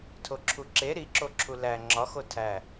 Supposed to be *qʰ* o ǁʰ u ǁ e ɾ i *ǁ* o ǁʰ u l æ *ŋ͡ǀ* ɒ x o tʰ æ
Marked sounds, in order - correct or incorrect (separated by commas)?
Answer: incorrect, correct, incorrect